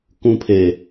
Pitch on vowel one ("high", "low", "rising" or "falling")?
high